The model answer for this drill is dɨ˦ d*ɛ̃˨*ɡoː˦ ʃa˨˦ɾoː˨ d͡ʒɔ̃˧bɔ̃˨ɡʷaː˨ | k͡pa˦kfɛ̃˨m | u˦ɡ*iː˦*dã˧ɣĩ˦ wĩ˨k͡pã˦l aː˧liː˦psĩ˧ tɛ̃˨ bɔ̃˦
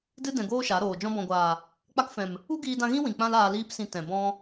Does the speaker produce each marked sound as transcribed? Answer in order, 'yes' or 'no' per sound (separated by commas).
yes, no